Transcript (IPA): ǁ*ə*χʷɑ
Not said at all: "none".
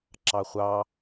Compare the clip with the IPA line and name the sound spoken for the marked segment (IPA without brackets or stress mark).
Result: ɑ